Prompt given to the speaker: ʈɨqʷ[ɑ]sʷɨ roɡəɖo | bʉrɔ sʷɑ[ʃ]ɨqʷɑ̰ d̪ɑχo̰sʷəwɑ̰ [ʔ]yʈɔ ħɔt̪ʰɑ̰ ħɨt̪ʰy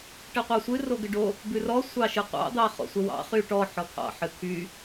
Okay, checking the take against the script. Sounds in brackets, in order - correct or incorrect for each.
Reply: correct, correct, incorrect: χ

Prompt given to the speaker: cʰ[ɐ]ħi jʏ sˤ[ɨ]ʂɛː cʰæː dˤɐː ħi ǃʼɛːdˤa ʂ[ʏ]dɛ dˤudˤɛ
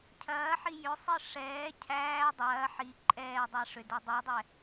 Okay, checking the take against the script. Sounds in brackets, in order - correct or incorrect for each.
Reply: incorrect: ɐː, correct, correct

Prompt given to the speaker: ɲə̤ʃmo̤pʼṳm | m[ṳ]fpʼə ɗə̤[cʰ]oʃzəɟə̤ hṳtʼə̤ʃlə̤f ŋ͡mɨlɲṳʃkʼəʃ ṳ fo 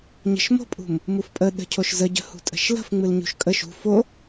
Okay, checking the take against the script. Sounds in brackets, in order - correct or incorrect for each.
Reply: incorrect: u, correct

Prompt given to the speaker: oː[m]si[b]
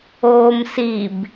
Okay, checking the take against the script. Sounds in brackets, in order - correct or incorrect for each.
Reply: correct, correct

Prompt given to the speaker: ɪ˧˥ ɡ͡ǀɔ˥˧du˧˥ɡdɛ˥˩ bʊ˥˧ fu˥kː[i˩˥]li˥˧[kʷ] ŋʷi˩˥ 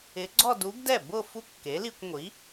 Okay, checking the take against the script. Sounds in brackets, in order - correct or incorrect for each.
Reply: incorrect: e˩˥, correct

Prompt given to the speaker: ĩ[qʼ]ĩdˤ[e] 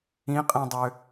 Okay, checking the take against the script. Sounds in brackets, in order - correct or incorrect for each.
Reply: correct, incorrect: ø

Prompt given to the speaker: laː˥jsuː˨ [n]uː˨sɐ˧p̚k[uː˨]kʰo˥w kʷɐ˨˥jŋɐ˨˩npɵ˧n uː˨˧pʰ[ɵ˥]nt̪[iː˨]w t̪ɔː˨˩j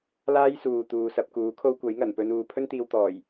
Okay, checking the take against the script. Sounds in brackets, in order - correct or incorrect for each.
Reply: incorrect: t̪, incorrect: uː˨˥, correct, incorrect: iː˧

